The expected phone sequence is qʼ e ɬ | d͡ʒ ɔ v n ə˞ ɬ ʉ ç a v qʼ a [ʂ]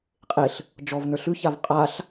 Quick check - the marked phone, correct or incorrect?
incorrect